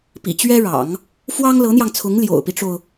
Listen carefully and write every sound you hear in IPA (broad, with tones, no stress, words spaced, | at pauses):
pḭ˨˩t͡ɕɥɛ˥ɻɑ̰˨˩˦ŋ | fwɑ˥ŋlɤ˧˥n̪jɑ˧ŋt͡sʰʊ˧˥ŋ ljo̰˨˩ʊ̯pi˦ʈ͡ʂo˩ʊ̯